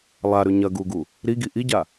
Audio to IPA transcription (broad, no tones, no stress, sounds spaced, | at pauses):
lˠ a ɾ ʉ ɲ ɐ ɡ u ɡ u | ɾ i ɡ i ʔ i ɟ a